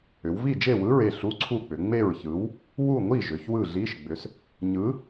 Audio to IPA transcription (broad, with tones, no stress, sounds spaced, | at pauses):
ʏ˩˧ w v i˥˨ d͡ʒ e˥˨ w ɯ˧˥˧ ɹ e˥˨ ɬ u˧˥˧ ǀʰ u˥˨ k͡p ʏ˩˧ ŋ͡m e˥˨ ɹ ç ɯ˨˥ w | w u˥˨ ŋʷ i˥˨ ʒ ʏ˩˧ ç w ɯ˥˨ ɮ i˧˥˧ ʃ ɡ͡b ʏ˨˥ s | ɲ ɯ˨˥